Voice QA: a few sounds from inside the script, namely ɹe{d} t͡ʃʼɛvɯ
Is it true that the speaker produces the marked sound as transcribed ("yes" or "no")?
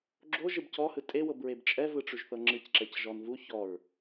no